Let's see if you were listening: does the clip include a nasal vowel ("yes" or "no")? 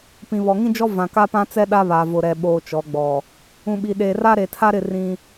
yes